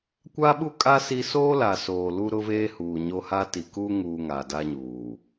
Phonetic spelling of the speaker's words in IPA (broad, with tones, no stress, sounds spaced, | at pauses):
kʷ a˦ ɓ u˦ kʼ a˦ s i˦ s oː˦ l a˨ s oː˨ l u˦ ɾ ʊ˦ v eː˦ h uː˨ ɲ o˦ h a˦ t i˨ k uː˦ ŋ uː˨ ŋ aː˨ d a˦ ɲ uː˨